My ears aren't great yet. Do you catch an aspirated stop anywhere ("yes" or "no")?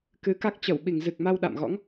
no